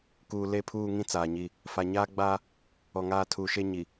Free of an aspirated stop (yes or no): no